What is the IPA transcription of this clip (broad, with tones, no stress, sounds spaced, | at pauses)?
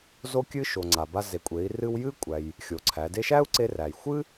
z o˧ kʲ ɨ˧ ʃ o˩ ŋ͡ǀ a˩ b a˧ z e˩ kʷʼ e˩˧ i̯ r ɨ˧ w j ɨ˥ kʷʼ æ˩ j | xʲ o˩˧ ǀʰ æ˩˧ d e˥ ʃ æ˥ u̯ ǀ e˧ r æ˩ j xʷ ɨ˥